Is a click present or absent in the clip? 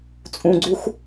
present